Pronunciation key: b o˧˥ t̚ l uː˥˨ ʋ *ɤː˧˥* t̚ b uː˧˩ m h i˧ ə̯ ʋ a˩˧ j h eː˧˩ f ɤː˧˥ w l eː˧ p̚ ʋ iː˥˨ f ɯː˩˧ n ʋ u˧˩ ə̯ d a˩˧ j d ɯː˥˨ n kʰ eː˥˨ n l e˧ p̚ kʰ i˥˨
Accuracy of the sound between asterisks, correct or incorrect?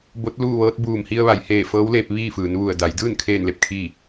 correct